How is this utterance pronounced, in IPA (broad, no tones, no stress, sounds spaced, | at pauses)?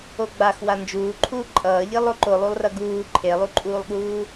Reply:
o ɡ͡b a x w a n d͡ʒ uː ǃʰ uː ǃʼ ʌː ʎ i lˠ o ǃ o lˠ u lˠ r ʌ ɡ uː ǃʰ e lˠ u ǃʼ uː lˠ ɠ uː